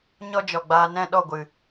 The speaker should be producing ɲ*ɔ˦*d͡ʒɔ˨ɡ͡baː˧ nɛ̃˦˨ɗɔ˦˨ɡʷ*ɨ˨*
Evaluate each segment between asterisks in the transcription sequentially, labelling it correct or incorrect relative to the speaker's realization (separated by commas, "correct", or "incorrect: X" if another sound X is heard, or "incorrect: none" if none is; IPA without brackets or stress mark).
correct, correct